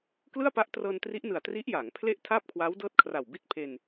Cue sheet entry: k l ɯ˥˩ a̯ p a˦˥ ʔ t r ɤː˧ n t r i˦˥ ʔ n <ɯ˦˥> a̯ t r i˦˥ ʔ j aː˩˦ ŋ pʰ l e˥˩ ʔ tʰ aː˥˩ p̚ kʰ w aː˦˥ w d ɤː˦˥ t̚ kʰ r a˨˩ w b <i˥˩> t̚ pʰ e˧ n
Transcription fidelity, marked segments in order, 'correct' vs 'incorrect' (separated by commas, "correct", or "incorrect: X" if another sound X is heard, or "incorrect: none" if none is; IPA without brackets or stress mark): incorrect: ɯ˨˩, correct